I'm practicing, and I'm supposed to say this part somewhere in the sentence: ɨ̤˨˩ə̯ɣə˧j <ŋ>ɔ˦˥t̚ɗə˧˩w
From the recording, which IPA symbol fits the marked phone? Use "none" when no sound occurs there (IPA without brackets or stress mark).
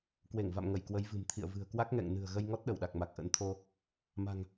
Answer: ŋ